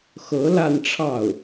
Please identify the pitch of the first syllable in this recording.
rising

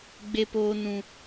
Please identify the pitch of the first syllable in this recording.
low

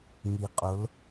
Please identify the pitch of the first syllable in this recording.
low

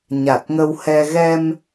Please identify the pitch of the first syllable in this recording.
low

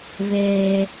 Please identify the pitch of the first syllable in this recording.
high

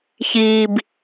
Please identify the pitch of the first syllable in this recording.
low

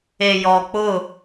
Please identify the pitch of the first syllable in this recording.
low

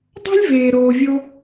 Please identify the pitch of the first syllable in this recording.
high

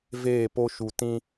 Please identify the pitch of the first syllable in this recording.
falling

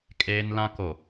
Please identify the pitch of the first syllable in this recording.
high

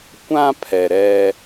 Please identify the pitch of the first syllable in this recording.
high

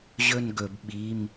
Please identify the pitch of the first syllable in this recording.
falling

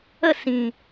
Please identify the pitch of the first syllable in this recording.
falling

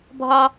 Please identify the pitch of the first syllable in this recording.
low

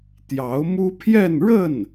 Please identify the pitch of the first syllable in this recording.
rising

